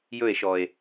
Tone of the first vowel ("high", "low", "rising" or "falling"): falling